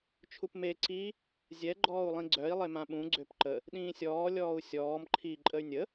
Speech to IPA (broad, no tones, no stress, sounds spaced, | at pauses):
t͡ʃʰ u p m e ǀ i | zʲ ɛ ɡ͡ǃ ɔː u̯ lˠ ĩ ɡ͡ǀ œ i̯ lˠ e m ã ɓ ũ ɡ͡ǀ ø p ǃ ə | ɗ ĩː sʲ ɔː lʲ ɔː u̯ sʲ ɔː m ǃʰ i ǃʼ ə y̯ nʲ ə